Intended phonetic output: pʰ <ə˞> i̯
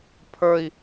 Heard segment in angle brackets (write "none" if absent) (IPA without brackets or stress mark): ə˞